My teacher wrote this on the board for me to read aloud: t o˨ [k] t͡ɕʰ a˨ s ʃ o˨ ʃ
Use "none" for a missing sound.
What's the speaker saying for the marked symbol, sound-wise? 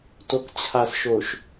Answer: k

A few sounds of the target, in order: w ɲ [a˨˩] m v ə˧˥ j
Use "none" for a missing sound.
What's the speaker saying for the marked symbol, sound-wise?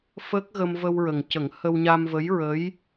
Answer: a˧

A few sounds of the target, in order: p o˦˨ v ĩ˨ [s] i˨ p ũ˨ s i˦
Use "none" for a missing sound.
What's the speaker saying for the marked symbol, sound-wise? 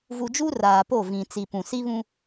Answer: t͡s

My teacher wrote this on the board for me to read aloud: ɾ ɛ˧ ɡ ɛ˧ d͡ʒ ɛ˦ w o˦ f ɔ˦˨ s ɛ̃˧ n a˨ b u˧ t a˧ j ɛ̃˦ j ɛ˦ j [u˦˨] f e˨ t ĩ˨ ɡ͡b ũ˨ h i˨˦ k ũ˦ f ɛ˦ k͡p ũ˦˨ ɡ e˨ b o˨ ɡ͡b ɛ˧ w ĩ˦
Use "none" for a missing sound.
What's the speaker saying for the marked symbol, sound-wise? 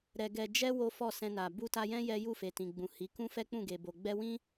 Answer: u˦˨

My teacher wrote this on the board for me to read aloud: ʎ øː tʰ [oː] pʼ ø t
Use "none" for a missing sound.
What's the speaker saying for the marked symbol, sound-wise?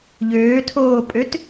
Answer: oː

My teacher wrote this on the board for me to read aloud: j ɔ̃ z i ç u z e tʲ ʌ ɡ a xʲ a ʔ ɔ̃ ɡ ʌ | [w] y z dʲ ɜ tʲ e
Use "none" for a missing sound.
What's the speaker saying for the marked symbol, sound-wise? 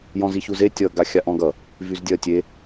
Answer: v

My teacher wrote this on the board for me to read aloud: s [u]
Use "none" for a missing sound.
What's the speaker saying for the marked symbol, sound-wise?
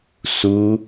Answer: u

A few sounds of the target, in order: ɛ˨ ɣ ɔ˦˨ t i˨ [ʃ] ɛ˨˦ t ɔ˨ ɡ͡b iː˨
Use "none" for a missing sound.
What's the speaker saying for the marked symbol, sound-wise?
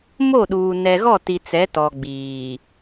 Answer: t͡s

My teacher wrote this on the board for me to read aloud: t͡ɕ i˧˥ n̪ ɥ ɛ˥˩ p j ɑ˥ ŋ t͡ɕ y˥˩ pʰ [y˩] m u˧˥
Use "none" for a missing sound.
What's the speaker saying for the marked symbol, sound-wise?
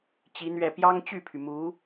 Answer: y˩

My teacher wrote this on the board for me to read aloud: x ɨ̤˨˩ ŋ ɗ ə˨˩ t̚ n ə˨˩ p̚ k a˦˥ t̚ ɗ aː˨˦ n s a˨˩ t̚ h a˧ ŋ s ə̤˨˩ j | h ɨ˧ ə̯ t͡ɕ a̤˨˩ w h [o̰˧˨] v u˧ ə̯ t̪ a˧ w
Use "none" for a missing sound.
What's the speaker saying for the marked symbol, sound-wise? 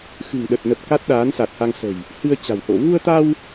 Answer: o̰˧˨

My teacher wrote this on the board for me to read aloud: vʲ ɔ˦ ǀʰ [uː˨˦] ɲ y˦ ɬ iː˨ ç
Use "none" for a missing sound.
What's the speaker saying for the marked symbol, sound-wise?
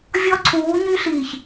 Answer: uː˨˦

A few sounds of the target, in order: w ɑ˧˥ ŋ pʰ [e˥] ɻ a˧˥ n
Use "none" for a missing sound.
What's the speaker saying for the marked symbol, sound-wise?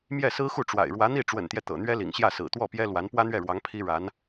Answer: i˥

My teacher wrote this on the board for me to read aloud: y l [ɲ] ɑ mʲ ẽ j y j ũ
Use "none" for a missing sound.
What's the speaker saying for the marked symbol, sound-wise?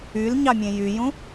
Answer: ɲ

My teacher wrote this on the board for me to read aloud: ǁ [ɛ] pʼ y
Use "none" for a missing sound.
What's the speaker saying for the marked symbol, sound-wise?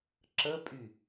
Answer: ə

